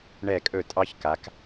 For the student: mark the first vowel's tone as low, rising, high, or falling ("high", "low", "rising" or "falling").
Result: falling